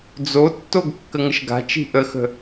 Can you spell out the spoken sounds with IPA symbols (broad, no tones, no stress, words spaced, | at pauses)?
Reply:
d͡zotːoɡ kːəŋəʃɡa̤t͡ʃi̤ ʔəxə̤